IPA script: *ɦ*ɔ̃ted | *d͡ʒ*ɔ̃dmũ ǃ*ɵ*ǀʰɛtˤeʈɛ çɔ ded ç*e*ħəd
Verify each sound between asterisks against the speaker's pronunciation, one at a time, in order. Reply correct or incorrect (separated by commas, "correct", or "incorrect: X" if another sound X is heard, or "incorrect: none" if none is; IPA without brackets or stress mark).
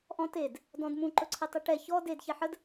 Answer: incorrect: ʔ, incorrect: d, correct, correct